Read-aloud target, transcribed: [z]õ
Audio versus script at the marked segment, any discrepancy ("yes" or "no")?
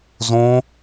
no